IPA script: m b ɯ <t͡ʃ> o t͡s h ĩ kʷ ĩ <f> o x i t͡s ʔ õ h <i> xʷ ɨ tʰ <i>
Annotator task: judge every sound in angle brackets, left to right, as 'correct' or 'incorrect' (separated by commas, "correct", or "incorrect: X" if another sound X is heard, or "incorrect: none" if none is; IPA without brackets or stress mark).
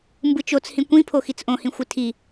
correct, incorrect: pʰ, incorrect: ĩ, correct